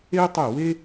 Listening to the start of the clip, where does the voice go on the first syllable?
high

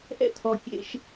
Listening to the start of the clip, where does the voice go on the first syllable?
high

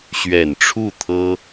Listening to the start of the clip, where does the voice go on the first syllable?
low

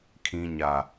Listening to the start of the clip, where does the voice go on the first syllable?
low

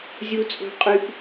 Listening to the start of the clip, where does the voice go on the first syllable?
high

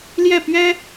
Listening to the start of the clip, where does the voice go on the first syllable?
falling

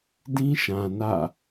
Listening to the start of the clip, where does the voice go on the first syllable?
high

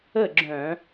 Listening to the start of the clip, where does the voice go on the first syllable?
falling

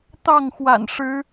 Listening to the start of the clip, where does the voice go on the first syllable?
falling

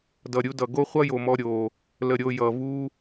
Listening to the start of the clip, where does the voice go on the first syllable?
low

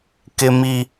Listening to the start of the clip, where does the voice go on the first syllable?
high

